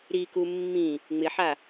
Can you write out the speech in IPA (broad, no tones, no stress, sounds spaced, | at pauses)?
ɾ i k u mː ĩ | ŋ͡m ɪ ħ a